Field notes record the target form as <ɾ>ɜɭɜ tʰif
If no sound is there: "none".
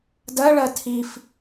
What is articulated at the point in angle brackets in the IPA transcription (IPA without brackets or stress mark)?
d